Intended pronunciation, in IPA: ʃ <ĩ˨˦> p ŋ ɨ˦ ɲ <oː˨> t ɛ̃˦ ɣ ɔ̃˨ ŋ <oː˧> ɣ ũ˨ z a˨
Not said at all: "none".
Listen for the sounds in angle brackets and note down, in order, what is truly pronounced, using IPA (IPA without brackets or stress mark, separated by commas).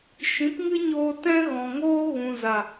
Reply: ĩ˨˦, oː˧, oː˦